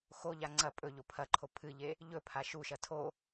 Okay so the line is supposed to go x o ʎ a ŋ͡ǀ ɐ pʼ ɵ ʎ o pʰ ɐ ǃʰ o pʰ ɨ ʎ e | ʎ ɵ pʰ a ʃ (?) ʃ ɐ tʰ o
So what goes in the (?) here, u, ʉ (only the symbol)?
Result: u